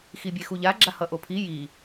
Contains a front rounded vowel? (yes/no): no